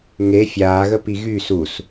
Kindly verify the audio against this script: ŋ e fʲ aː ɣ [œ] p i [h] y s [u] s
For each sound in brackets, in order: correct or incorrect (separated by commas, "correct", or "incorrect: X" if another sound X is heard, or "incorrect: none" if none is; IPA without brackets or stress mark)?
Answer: incorrect: ə, incorrect: ɣ, correct